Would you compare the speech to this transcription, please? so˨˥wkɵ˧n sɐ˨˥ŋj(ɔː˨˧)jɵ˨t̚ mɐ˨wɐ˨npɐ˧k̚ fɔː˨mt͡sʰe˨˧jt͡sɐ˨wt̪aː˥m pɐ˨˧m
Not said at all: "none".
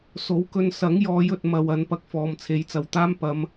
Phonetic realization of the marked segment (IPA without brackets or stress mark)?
ɔː˨˧